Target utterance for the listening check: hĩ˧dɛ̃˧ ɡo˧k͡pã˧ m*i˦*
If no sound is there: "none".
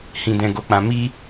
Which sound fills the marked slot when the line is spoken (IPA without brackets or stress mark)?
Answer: i˦